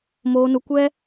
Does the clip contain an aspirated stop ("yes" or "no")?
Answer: no